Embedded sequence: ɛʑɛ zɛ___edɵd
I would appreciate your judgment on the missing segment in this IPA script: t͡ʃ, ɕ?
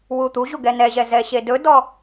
ɕ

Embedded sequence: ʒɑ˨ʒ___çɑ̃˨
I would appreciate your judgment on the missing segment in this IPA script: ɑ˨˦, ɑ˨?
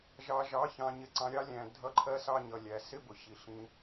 ɑ˨˦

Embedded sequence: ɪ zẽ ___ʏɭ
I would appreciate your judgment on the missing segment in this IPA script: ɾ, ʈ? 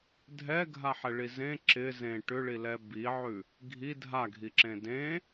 ʈ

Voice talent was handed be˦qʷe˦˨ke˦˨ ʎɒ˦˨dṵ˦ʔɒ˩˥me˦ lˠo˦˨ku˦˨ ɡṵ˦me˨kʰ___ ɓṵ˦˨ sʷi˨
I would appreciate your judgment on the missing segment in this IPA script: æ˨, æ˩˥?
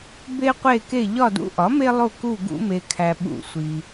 æ˨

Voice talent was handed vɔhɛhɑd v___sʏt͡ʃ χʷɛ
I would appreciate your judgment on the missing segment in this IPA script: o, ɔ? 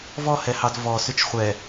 ɔ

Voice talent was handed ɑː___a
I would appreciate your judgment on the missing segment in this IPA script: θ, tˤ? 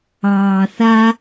θ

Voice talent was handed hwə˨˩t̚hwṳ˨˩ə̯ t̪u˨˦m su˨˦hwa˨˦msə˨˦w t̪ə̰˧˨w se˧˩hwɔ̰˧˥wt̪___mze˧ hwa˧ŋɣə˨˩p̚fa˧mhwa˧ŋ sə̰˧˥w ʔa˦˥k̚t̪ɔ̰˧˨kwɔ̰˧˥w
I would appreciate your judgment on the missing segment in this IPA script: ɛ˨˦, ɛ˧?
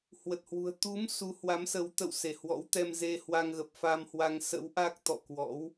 ɛ˧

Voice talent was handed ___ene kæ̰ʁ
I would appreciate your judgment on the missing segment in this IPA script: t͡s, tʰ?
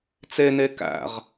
t͡s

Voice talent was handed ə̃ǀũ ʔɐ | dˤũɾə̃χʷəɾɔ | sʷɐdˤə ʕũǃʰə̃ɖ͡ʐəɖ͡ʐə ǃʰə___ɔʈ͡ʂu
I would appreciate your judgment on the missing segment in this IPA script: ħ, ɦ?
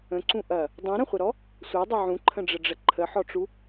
ħ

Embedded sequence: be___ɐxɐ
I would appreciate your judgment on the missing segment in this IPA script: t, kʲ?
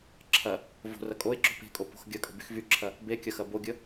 kʲ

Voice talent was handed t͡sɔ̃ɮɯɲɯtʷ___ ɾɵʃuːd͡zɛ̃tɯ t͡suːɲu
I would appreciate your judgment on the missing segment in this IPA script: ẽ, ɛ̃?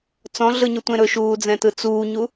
ẽ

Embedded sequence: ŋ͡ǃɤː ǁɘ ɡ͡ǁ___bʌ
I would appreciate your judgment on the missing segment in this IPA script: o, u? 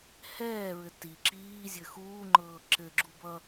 u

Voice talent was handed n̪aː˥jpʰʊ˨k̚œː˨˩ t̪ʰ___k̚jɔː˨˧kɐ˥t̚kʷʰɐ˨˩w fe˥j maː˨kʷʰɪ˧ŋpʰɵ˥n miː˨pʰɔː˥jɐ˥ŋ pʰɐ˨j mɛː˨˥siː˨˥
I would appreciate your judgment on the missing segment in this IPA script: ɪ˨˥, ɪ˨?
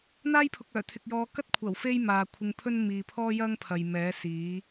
ɪ˨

